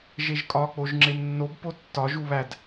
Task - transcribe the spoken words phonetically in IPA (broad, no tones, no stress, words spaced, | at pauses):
ʒeʒkʼɒ k͡poʒŋ͡ǁemnːob potːɒ ʒuβæd